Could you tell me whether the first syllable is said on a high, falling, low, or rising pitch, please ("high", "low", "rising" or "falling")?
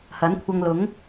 rising